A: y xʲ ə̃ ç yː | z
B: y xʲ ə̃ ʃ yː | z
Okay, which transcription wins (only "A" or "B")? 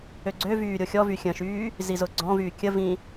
B